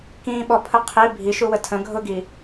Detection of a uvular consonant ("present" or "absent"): present